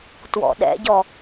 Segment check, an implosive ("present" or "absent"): present